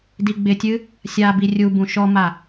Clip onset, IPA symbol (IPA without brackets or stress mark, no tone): d